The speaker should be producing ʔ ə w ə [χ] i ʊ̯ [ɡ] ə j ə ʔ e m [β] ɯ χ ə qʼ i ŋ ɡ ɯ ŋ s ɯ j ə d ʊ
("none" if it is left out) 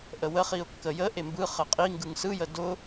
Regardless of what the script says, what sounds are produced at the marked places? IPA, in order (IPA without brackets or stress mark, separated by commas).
χ, kː, b